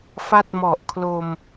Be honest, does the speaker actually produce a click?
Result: no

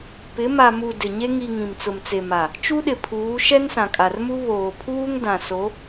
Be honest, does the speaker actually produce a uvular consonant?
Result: no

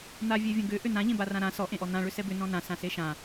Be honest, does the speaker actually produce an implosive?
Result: no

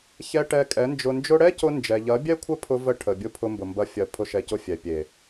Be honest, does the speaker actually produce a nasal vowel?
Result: no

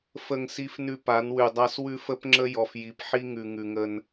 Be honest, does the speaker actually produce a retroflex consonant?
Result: no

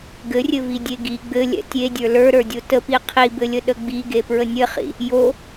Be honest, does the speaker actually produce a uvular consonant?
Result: yes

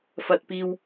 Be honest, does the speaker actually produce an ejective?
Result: no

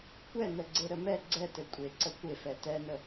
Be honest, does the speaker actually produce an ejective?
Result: yes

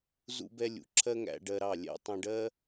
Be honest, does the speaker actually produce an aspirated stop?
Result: yes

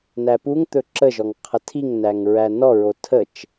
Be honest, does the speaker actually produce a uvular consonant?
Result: yes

